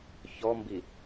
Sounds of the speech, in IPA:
ç ɔ m b i

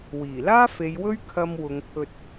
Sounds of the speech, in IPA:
w iː˨˩ l aː˥ f e˨˧ j w ɵ˥ ɥ kʰ ɐ˧ m w ʊ˨˧ ŋ pʰ ɵ˧ t̚

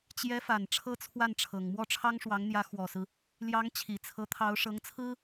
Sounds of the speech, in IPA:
t͡ɕ j ɛ˧˥ f a˨˩ n ʈ͡ʂʰ ɤ˥ t͡sʰ w a˥˩ n ʈ͡ʂʰ ɤ˨˩ ŋ m w ɔ˥˩ ʈ͡ʂʰ ɑ˥ ŋ ʂ w ɑ˧˥ ŋ n̪ j ä˧˥ x w ɔ˨˩ s ɹ̩˦ | l j ɑ˧˥ ŋ t͡ɕʰ i˨˩ t͡sʰ ɤ˧˥ t̪ʰ ɑ˧˥ ʊ̯ ʂ ɤ˧˥ ŋ t͡sʰ ɹ̩˥

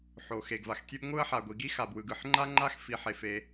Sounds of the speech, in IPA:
ħ o˩ x e˩ ɡ v a˩ x tʲ e˥ b ŋʷ ɯ˥ ɐ̯ ħ a˩ ɡʷ i˩ ɡ i˥ x a˩ b w ɯ˩ ɡ ɯ˩ ħ ŋ͡ǃ a˥ ŋ͡ǃ a˥ x f i˩ ħ e˩ f e˩

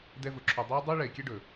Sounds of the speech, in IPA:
d ɛ˦ v ʊ˨˦ ǁʰ o˧ dˤ ɛ˧ ɪ̯ dˤ ʊ˦ ɪ̯ ɭ ɛ˨ ɪ̯ kʲ ɛ˦ ɖ ɵ˨

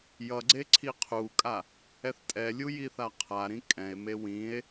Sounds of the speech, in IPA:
j ʌ ɡ͡ǀ e ǀʰ i qʰ u kʼ a | ɛ θ tʼ ɛ lʲ u j i θ a qʰ a ɾ ĩ kʼ ɛ̃ e̯ m e w ĩ e̯

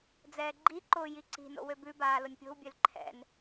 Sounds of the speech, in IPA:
d͡z ɛː ɡ͡ǃ i ǃ ʊː j i ǀ i̤ n o̰ w ø b ʉ b aː l ʊ nʲ pʲ o̤ w bʲ ø l ǃʰ ɛ̰ n

